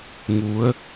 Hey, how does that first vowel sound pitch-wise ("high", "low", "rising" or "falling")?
rising